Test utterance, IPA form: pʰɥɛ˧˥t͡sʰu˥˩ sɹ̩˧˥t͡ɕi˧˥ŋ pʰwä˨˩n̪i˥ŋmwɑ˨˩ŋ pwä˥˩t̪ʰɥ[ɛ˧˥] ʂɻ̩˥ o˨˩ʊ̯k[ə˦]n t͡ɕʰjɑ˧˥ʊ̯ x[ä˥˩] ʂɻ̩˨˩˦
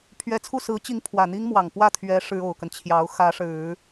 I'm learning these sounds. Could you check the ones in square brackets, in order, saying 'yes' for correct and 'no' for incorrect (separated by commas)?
yes, yes, no